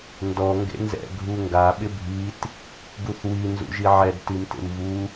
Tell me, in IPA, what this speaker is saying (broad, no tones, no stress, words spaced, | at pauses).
ndɔ ŋɡḛnzɛ̰ ɡʱuŋɡa ɓɪbʱit | ɡuθwi nzṵʒiʕɛd timtḛmvu